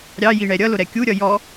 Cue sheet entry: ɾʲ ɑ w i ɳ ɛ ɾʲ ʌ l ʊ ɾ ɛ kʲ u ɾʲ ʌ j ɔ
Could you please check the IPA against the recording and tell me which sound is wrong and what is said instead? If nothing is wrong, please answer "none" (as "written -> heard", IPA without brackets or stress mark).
w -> j